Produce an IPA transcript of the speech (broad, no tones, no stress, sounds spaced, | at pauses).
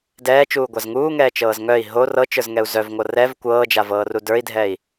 d ɛː t͡ʃ uː ɡʷ a z ŋ uː ŋ ɛː t͡ʃ ɤː z ŋ œ i̯ ɦ o r ɤ t͡ʃ ə˞ z ŋ ɛ u̯ z œ v ŋʷ ɤ r ɛ v kʷ ɤː d͡ʒ a v ɤː r u d ə˞ i̯ dʱ ɛ i̯